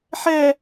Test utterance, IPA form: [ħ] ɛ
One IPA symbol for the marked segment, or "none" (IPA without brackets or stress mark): ħ